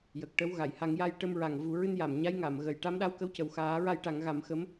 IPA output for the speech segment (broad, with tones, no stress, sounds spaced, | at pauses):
j ə˨˩ k̚ ʈ ə˧˥ w ɣ a˨˩˨ j h a˨˩˦ ŋ j a˧ j ʈ ə˧ m ɹ a˨˩ ŋ v u˨˩˦ ɹ ɨ˧ n j a˨˩˨ m ɲ a˧˥ j ŋ a˨˩˨ m ɣ ə˨˩ j ʈ a˧˥ m ɗ a˧˥ w k ə˧˥ w c ə˨˩ w x aː˨˩˦ ɹ a˧ j ʈ a˨˩˦ ŋ ɣ a˨˩˦ m x ə˧˥ m